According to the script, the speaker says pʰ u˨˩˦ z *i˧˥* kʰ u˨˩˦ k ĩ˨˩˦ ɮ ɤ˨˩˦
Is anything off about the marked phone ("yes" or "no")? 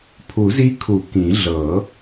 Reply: no